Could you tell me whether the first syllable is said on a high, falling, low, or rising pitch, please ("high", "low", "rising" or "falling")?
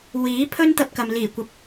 rising